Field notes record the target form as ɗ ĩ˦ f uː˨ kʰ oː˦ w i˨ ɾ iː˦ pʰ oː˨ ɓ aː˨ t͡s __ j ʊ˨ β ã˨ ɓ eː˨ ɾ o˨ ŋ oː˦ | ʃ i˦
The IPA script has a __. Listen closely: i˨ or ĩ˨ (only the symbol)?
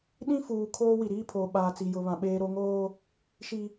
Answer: i˨